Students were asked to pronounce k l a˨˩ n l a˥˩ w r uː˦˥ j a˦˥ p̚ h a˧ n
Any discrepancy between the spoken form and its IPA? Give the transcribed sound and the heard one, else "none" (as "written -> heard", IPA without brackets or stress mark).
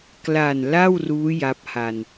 none